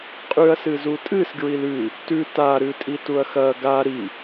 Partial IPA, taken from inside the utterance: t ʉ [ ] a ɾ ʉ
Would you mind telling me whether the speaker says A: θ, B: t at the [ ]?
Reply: B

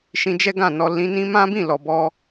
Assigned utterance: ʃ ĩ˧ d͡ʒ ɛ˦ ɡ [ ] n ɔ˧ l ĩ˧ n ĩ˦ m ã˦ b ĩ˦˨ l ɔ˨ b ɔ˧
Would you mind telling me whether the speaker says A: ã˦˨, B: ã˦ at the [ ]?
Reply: A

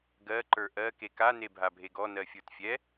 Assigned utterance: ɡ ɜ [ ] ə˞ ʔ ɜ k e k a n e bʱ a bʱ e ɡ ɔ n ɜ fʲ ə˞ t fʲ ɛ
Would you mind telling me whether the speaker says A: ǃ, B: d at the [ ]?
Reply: A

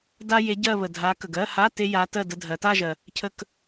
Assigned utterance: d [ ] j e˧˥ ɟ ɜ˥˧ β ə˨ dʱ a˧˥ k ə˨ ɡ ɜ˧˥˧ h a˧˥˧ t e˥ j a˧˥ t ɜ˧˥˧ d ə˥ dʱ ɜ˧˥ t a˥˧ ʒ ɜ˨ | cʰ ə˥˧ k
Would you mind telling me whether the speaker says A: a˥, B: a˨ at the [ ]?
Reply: A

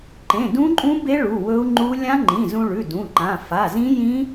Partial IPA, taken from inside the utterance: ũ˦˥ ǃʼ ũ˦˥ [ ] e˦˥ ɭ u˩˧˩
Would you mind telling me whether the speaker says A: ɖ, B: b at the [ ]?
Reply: B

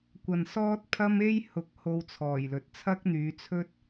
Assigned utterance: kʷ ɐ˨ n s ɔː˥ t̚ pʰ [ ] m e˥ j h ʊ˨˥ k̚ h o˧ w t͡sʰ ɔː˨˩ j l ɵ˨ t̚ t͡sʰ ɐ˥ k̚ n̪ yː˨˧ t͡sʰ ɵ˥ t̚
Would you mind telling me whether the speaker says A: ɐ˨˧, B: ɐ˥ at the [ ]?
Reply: B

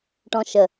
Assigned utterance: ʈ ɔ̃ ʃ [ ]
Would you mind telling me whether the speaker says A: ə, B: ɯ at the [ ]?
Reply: A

